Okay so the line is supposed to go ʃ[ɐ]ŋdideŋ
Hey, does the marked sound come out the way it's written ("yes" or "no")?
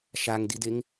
no